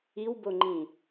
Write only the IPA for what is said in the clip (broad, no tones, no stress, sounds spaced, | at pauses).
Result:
i w b o ŋ͡ǃ ĩ